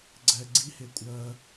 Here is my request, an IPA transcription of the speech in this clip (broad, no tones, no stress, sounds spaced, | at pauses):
ɡ͡ǀ ɛ ɡ͡ǀ i h e kʷʼ ɜ